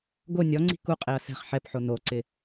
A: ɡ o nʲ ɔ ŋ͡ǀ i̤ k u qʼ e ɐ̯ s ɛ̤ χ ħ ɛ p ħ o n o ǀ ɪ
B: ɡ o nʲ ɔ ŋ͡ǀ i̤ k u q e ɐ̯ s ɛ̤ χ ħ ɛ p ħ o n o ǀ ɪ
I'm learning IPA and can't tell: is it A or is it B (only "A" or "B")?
A